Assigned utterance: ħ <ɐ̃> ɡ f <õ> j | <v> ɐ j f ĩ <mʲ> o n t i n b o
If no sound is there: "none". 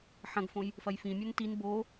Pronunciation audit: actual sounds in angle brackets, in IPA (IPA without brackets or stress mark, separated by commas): ɐ̃, õ, f, mʲ